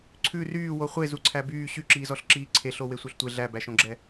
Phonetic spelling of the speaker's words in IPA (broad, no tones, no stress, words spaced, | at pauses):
ǀʰʉ ryːwo χʷezu ǀʰæbyː ɕyǁiːzɔɬ ǁiːǀʰeɬo wesʷœɬtʷe ɮæbæʃõɡ͡ǁɛ